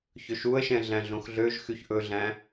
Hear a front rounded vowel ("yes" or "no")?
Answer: yes